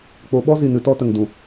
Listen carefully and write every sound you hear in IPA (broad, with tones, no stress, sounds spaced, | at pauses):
k͡p o˨˦ ɓ ɔ˦ z i˨ n ɨ˨˦ t ɔ˧ t ə˨ ŋ d ũ˨